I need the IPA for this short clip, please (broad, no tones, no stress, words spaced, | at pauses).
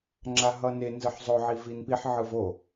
ŋ͡ǁaɦʌne nzɯħzˤo ʕivinpiħ ʕɯvo